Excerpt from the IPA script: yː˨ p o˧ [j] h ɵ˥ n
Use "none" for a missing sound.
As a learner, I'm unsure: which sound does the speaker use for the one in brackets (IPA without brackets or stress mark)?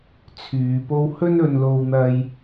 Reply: w